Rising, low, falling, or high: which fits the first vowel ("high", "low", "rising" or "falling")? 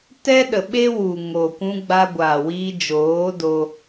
high